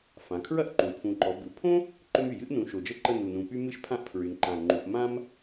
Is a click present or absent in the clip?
present